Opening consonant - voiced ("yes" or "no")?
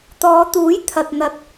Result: no